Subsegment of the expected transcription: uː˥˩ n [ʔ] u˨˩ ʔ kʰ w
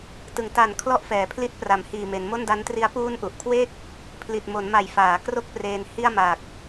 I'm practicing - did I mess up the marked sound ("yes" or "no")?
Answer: no